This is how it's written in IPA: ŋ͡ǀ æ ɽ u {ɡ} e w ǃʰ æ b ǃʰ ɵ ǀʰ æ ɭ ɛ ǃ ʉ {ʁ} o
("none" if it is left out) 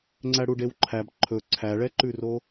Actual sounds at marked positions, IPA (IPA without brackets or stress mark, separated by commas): ɖ, r